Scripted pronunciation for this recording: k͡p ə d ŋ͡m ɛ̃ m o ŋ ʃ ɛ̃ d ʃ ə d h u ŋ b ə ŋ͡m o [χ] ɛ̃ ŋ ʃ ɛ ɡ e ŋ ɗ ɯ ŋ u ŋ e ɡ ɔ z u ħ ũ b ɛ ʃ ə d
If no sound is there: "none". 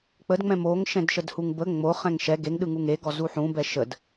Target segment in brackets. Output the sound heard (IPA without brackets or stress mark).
χ